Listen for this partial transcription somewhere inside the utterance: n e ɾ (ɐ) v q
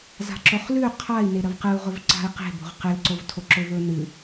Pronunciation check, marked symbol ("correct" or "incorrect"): correct